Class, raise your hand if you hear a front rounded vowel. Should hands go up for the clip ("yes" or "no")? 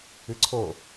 no